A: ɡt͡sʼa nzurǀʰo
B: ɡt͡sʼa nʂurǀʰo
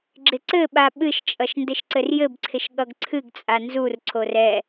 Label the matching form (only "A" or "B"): A